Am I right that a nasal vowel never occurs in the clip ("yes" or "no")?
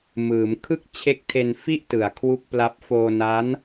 yes